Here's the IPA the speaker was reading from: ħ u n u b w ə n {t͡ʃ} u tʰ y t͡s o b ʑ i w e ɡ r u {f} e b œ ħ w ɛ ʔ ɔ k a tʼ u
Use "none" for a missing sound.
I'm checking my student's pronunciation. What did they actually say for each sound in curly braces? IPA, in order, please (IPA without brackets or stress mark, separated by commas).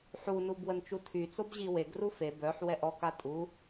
t͡ʃ, f